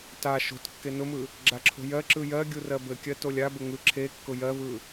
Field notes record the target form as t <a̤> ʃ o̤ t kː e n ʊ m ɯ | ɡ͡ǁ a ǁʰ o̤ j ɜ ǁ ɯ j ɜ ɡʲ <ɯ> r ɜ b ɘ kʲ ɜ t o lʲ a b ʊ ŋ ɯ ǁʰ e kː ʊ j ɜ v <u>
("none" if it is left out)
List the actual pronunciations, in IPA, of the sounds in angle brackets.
a, u, ɯ

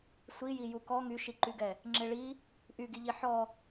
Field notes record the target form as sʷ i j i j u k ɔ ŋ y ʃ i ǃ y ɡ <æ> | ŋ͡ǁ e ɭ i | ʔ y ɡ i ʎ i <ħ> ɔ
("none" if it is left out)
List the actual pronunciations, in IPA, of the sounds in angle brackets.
ɛ, ħ

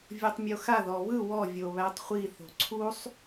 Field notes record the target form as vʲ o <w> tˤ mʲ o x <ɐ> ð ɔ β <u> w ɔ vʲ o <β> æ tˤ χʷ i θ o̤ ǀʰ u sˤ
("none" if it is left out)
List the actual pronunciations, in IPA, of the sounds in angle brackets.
none, a, ɯ, β

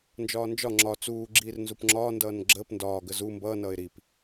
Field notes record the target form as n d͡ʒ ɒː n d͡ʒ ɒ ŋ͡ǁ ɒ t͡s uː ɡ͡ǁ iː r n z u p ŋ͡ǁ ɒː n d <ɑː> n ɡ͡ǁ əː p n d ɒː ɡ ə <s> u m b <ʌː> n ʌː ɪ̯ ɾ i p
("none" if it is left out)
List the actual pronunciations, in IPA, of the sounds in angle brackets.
ʌː, z, ʌː

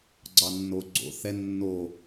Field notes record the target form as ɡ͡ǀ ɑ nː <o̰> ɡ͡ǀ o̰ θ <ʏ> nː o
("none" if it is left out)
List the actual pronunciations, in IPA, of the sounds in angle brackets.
o, ɛ

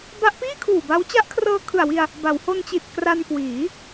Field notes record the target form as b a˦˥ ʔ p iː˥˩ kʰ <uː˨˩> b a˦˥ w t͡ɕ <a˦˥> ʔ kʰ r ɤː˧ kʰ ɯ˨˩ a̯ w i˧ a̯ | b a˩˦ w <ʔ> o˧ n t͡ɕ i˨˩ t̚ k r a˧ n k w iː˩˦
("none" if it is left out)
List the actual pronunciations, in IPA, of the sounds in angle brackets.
uː˨˩, a˦˥, h

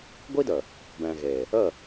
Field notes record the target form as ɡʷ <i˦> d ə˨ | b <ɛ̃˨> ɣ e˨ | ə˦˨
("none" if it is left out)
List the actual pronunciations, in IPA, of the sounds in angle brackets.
i˦, ɛ̃˨

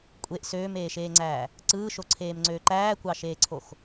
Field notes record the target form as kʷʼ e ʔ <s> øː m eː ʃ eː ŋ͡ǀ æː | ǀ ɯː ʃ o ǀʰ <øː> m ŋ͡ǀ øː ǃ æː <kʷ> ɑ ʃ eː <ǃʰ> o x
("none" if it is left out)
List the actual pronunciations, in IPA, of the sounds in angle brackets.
s, eː, kʷ, ǀʰ

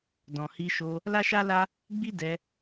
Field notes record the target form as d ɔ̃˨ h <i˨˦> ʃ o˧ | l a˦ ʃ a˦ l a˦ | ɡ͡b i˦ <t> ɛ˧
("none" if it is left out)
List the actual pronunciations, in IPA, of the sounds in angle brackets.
i˧, d

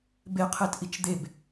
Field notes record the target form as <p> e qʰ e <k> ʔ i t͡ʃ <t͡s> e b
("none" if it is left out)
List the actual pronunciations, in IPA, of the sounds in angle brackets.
b, t, d̪

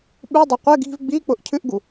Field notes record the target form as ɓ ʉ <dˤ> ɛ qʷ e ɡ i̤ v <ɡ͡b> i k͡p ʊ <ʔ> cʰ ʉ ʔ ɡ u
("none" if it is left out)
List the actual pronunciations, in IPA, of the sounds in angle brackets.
dˤ, ɡ͡b, ʔ

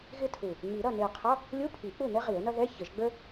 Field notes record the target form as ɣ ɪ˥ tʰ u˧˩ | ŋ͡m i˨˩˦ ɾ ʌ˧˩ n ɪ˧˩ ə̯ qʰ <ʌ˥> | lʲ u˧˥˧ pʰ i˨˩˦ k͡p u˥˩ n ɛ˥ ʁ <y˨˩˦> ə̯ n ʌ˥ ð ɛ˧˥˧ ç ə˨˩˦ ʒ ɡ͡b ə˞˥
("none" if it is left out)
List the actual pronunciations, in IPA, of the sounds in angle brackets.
ʌ˧˥˧, i˨˩˦

